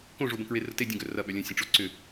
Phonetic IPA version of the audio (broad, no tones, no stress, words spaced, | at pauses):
kõʐobə̃ kɹerəte dʲə̃ɡœ rɐɓœ lʲə̃ sʲə̃ʈ͡ʂoǀʏ